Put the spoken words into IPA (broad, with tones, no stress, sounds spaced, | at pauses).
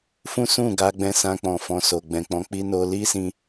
f ũ˦ s ũ˦˨ ɡ a˧ ɡ͡b ɛ̃˧ s ã˧ k͡p ɔ̃˨ f ɔ̃˨ s o˨ ɡ͡b ɛ̃˨ k͡p ɔ̃˨˦ k͡p i˧ n o˧ l i˦ s ĩ˧